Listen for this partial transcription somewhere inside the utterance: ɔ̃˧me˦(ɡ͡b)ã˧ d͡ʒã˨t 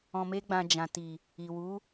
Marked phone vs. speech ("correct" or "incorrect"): correct